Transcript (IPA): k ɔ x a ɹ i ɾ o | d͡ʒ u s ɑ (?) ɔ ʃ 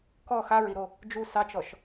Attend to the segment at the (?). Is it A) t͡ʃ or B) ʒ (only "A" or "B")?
A